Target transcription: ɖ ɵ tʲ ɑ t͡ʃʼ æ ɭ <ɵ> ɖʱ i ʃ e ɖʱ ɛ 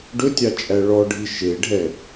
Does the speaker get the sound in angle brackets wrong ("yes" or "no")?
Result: yes